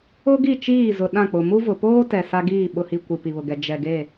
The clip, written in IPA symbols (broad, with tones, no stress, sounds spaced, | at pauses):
ʊ˦ ɡ i˦˨ t͡ʃ iː˦˨ z ʊ˨ ɗ ã˦˨ k͡p ʊ˨ m u˦ v ʊ˨ p oː˦ t ɛ˨ s a˦ ɡ iː˦˨ ɓ ʊ˨ h i˨ kʷ i˨ p i˨ β ʊ˨ ɡ ɛ˨ d͡ʒ ɛ˨ ɡ e˦˨